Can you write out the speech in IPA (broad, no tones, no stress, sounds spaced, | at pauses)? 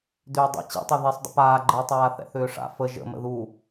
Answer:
d ʏː dˤ ḭ t͡ɕ ḭ tˤ œ ð i sˤ dˤ ə̰ p aː ɡ͡ǃ əː tˤ aː θ ɛ̰ θ ʏː ʂ a̰ f ə ʒ ə̰ m ə̰ ð u